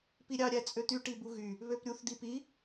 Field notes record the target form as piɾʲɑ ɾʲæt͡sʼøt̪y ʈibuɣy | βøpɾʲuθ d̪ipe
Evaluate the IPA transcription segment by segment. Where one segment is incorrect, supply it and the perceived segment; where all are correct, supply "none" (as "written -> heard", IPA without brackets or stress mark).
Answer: e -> i